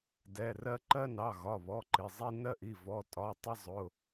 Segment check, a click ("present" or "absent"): present